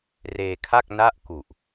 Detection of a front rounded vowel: absent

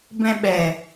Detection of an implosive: present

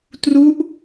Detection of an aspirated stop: absent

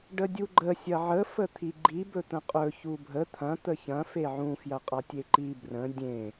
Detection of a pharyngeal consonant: present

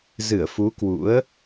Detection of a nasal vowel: absent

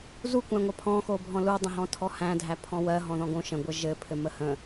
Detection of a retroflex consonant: absent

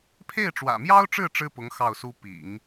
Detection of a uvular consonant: absent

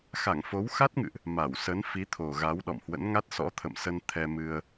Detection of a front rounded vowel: absent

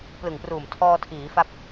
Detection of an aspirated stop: present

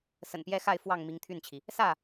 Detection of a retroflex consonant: absent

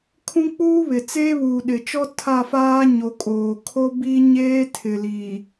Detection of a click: absent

